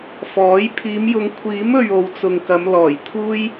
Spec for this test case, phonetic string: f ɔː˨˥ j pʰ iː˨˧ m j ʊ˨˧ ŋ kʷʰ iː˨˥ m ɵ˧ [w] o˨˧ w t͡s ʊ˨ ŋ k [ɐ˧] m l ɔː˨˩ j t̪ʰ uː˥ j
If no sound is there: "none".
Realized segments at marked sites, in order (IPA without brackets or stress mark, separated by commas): ɥ, ɐ˨˧